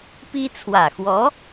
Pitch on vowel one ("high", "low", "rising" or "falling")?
high